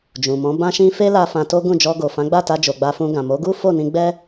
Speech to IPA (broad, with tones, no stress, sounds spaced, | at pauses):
d͡ʒ ũ˨ m ɔ̃˨˦ b ã˧ ʃ ĩ˧ f e˦ l a˧ f ã˧ t o˦ ɡ ũ˦˨ d͡ʒ ɔ˧ ɡ o˨ f ã˨˦ ɡ͡b a˦˨ t a˧ d͡ʒ o˨ ɡ͡b a˧ f ũ˧ ɡ ã˨ m o˨˦ ɡ u˦ f o˦˨ n ĩ˧ ɡ͡b ɛ˦